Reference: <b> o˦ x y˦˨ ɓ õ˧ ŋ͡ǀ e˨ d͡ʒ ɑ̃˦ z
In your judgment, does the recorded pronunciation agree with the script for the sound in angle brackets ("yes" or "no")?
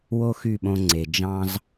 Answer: no